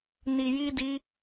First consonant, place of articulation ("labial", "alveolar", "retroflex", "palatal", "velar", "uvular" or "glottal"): alveolar